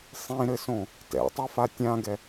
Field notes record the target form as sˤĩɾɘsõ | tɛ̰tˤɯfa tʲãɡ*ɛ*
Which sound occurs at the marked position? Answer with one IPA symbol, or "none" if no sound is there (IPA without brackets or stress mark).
ɛ